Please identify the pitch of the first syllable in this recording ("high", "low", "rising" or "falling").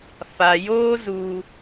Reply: low